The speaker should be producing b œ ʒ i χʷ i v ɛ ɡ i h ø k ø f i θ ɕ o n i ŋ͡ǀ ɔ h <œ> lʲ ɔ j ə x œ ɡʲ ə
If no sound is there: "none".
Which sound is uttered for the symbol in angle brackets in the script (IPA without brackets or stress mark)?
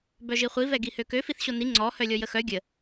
œ